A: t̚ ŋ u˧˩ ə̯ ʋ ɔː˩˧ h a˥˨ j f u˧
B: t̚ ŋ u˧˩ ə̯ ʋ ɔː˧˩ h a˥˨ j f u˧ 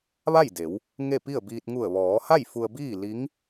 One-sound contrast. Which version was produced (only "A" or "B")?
A